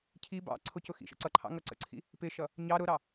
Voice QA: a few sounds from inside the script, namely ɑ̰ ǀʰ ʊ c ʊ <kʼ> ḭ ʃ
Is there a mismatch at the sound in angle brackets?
yes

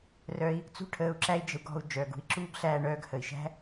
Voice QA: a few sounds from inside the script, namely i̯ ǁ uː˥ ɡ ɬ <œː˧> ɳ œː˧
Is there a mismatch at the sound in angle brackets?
yes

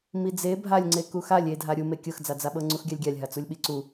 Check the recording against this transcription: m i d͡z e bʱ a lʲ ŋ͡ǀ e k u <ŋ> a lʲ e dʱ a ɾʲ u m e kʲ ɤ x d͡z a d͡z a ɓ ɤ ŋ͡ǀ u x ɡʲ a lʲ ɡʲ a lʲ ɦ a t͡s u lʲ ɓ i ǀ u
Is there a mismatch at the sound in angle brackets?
yes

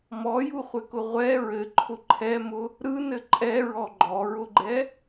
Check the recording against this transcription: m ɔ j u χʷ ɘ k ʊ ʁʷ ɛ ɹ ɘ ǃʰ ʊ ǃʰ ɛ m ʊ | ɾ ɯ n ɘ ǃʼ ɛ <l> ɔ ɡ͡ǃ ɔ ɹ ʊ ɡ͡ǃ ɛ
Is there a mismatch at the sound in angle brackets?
yes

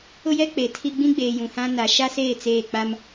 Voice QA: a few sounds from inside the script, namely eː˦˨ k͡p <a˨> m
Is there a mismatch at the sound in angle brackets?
yes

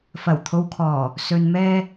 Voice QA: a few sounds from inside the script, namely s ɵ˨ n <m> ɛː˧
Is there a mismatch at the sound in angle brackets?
no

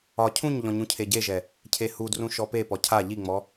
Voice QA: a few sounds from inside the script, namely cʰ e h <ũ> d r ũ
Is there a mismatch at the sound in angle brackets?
yes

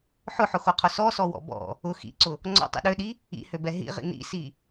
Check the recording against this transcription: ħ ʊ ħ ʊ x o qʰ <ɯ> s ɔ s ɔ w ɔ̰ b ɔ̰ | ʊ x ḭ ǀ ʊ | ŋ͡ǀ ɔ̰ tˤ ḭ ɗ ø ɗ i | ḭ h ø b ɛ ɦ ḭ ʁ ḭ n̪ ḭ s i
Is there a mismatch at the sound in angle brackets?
yes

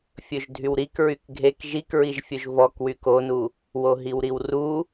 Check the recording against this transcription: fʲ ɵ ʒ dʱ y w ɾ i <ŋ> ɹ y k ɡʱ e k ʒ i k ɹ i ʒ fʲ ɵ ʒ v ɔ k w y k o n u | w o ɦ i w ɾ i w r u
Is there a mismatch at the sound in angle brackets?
yes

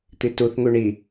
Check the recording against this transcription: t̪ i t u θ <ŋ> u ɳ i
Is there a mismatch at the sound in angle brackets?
no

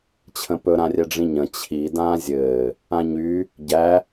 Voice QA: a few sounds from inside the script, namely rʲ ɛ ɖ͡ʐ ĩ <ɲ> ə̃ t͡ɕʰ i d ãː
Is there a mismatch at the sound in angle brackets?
no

